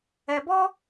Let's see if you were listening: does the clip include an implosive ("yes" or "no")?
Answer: no